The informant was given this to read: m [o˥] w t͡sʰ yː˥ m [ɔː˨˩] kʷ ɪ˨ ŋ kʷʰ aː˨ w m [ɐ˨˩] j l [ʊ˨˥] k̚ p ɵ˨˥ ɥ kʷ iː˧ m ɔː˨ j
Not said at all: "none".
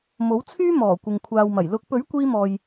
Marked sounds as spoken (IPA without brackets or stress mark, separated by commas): o˨˥, ɔː˨˩, ɐ˨˩, ʊ˨˥